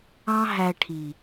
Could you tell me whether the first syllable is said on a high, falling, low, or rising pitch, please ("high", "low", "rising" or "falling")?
high